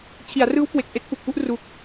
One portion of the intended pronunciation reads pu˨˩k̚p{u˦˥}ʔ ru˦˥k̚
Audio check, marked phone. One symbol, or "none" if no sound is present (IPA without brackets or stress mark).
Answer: u˥˩